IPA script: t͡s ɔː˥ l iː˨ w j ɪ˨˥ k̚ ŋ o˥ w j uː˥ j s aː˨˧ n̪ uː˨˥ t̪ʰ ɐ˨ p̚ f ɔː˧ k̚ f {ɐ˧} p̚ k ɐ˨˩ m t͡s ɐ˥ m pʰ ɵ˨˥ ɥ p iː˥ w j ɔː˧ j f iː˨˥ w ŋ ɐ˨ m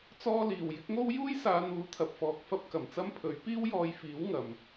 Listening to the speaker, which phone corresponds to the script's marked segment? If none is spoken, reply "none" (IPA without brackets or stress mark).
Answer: ɐ˥